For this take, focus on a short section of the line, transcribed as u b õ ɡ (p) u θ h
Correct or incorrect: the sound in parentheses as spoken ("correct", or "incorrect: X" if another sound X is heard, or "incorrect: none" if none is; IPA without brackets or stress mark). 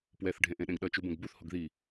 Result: incorrect: b